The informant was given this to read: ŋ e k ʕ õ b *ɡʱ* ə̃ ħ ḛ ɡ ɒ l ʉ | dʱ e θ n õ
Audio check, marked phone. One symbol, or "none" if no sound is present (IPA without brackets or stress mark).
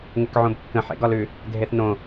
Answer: kː